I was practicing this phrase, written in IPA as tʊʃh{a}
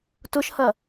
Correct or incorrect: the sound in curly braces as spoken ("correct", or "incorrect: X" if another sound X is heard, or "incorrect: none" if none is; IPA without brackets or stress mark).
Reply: incorrect: ɐ